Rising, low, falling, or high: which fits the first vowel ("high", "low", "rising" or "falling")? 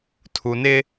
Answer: low